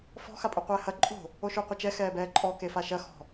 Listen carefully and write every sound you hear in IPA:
fɔ̤ xapʼuqʷɛːhɐ ǃʼo̤ | oʃuqʷɘt͡ʃɛ xɛːbɛːǃʼɔ kefaʃɐ xɔ̤

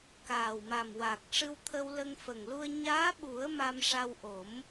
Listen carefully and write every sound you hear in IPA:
kaː˨˩wma˨˩m waː˨˩k̚ ʂɨ˧wt̪ʰə˧wlə˧ŋ fə˨˩ŋlu˧ə̯ ɲaː˧˥ɓu˨˩˦ə̯ ma˧mʂa˧wʔo˨˩˦m

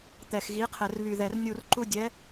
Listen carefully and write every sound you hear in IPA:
t̪ɛ˨˩xɣi˨˥qʰɘ˨˩r βy˨˩ðɛ˨˩r nʲu˦˨rǃu˥ dʲɛ˨˥

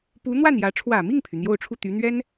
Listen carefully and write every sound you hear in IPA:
pu˧˥n̪wa˥˩njä˧˥ ʈ͡ʂʰwä˨˩mi˥˩ŋpʰy˩ n̪jo˥˧ʊ̯ʈ͡ʂʰu˥˩ t̪y˧˥n̪ɥɛ˥n

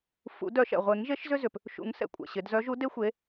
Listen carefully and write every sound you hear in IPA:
fṵ˨˩˦ dœ˨˩˦ʃɛ̰˩ʁʷe˨˩˦ŋʒe˨˥ʃ zʏ˦zʏ˩p | ʃṵ˨˩˦ŋsɛ̰˩ kʷʼɛ̰˩ɕɪ˨˩˦d zœ˨˥ʒu˨˥de˦ xʷe˨˥

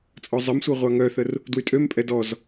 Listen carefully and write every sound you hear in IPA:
t͡sʼɔzˤəmsʷe ʁʷaŋœθər | dwytʼømpʼɛ dɔz

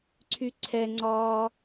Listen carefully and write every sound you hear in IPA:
ǀʰyǀʰɛŋ͡ǀɒː

